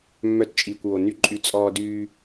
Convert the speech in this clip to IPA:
mː œ˧ t t͡ʃʼ iː˨ kʷ w o˨ n y˦ ǃʼ y˦˨ t͡sʼ ɔː˧ d yː˧

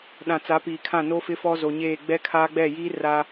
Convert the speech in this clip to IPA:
ɗ ã˨ t͡s a˨˦ p iː˨ kʰ ã˦˨ n o˦ f ɪ˦ f ɔ˦ z o˨ ɲ eː˦˨ ɡ͡b ɛ˦ kʰ aː˦ ɡ͡b ɛ˦˨ j iː˦ r a˦

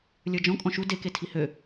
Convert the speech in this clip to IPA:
lʲ ə˞ d͡ʒ ɔ̃ kʼ ɔ̃ ʃ u d e k e tʰ i h ø

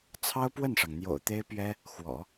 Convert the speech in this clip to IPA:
t͡sʰ ɑ˥ ʊ̯ p w ə˥˩ n ʂ ɑ˩ ŋ n̪ j o̰˨˩ ʊ̯ t̪ e˥ ɪ̯ p ɥ ɛ˥ | x w ɔ̰˨˩˦

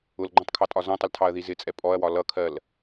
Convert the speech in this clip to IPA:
ʊ l ɡ͡ǃ ɔ̃ tˤ kʰ ɑ tʼ ɒ z ɔ̃ tˤ ə l tʰ ɑ ɐ̯ ð i z ɪ t͡sʼ ɛ pʼ ɔ ɐ̯ w ɒ l ʌ kʰ ɜ l

